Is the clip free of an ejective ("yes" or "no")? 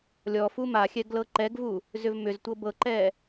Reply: yes